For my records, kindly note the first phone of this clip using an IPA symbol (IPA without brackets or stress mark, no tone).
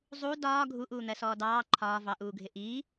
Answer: zˤ